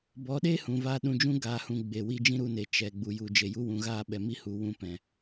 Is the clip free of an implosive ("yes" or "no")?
no